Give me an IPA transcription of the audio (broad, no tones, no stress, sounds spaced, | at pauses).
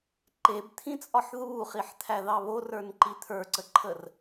ǃ e b t̪ʰ ĩ t͡sʼ ɒ ħ ð uː χ i ħ t̪ʰ æ ð ɑ β o r ə˞ n ǃ i t̪ʰ ə˞ ǀ ə ǃʰ ə r